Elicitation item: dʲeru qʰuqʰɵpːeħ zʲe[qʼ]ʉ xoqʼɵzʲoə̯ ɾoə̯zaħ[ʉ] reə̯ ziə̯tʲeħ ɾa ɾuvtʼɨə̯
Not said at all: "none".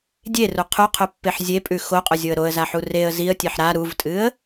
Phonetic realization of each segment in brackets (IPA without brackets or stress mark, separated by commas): pʼ, u